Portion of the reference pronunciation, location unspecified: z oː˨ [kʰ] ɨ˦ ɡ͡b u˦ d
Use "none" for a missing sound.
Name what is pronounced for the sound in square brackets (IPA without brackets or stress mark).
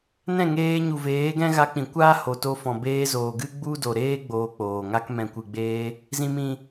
ɡ